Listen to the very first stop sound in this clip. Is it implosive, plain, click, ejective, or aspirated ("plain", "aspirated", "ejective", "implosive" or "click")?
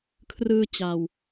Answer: aspirated